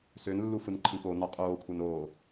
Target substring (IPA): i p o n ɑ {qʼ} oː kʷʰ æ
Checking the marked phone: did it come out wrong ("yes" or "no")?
no